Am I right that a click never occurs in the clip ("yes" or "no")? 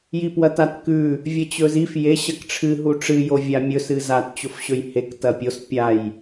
yes